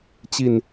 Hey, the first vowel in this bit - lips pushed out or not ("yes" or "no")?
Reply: no